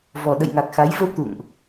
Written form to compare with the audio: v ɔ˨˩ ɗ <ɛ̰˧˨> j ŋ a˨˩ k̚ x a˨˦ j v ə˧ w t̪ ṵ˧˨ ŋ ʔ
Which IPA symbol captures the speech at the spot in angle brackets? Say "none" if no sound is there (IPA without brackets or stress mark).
ə̰˧˨